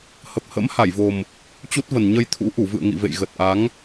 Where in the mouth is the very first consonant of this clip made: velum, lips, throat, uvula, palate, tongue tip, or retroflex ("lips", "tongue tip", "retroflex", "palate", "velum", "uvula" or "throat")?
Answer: throat